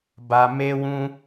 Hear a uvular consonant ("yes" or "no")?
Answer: no